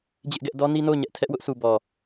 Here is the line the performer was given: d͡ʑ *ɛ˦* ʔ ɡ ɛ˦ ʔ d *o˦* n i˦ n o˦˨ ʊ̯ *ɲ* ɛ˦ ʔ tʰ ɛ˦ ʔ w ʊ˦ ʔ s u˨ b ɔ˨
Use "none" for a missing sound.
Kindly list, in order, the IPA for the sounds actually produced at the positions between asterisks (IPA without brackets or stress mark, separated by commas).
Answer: ɪ˦, ɔ˦, ɲ